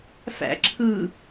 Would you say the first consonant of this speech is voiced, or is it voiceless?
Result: voiceless